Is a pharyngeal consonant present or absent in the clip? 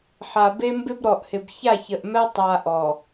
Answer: present